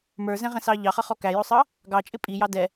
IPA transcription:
m ə˞ z ɛ̃ ʁ ɛ̃ s ɑ ʎ ɑ χ ʌ χ ɔ k æ j ʊ sˤ ʌ | ɡ ɑ t͡ʃʼ ɪ pʼ i j ɑ d ɛ

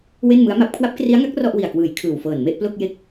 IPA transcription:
w e˥˩ n m ɯ˦˥ a̯ m a˦˥ p̚ kʰ w a˦˥ p̚ k r i˦˥ a̯ ŋ a˦˥ k̚ r ɔ˥˩ ʔ w i˨˩ a̯ k w ɯː˨˩ j kʰ ɯː˨˩ w f ɤː˨˩ n m e˥˩ ʔ p l o˥˩ k̚ j e˦˥ k̚

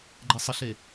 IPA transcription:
ɡ͡ǃ ɛ sˤ ə ɬ e

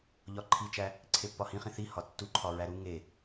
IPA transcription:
ʎ ɒ ǃʰ i t͡ʃ æ | ǀʰ e pː ɒ h ĩ χ ĩ θ i h ɒ tː u ǃʰ ɒ ɹ æ ɾ u ŋ e

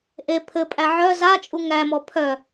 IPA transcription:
ʔ e pʰ ɘ pʼ æ ʕ œ z a t͡ʃʼ u ŋ æ m ɔ pʰ œ

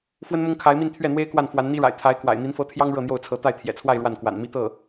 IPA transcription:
f w ə˥ n m ʊ˥ ŋ kʰ a˧˥ ɪ̯ m i˥˧ n t̪ʰ ɥ ɛ˥˩ n̪ w e˥ ɪ̯ k w a˥˩ n f w a˧˥ n n̪ i˥ ɻ a̰˨˩ ɪ̯ t̪ʰ a˧˥ ɪ̯ k w a̰˨˩ ɪ̯ n̪ i˧˥ n f ɤ˧˥ t̪ʰ j ɑ˥ ŋ ɻ ɤ˥˧ n̪ j o˥˩ ʊ̯ t͡sʰ ɤ˧˥ t̪ a˥˩ ɪ̯ t̪ʰ j ɛ̰˨˩ t͡sʰ w a˥˧ ɪ̯ ɻ w a˥˩ n k w a̰˨˩ n m i˥˧ t̪ ɤ˥˩

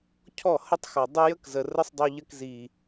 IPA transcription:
cʰ ɔ˦˨ h ə˦ tˤ x ɔ˨ dˤ ə˦ j ə˦ k z ə˨ r ə˦ sˤ dˤ o˧ ʎ ə˧ k z i˨

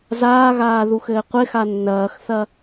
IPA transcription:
z aː ɣ aː ð u x ɘː qʷ ɪ x a nː ɐː x θ ɐ

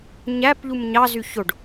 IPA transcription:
ɲ æ p ʎ u m ɲ ɑ z y ç o ɖ

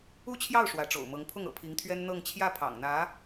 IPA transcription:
u˥˧ t͡ɕʰ j ɑ˥˩ ʊ̯ ʂ w ä˧˥ ʈ͡ʂ o̰˨˩ ʊ̯ m ɤ˧˥ ŋ pʰ ʊ˥˩ ŋ ɤ̰˨˩ pʰ i˧˥ ŋ t̪ʰ ɥ ɛ˥ n n̪ ɤ˥˧ ŋ t͡ɕʰ j ä˥˩ pʰ ɑ̰˨˩ ŋ n̪ ä˧˥

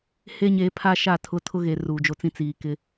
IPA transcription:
h e˦ ɲ eː˨˦ pʰ a˦ ʃ a˦˨ tʰ ʊ˦ tʰ ʊ˦ ɣ e˨ r uː˨ d͡ʒ o˦ t͡s ĩ˦ t͡s iː˨ k ɪ˦

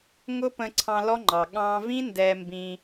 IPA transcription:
ŋ ʊ˦ p ə̃˧ ǀʰ ɑ̃˧ l ɔ˦ ŋ͡ǃ ɑ˨ ɠ ɑ̃˧ v ĩ˦ n d ɛ˧ m b ĩ˧

